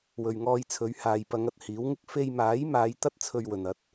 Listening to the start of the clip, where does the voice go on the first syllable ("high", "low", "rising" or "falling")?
low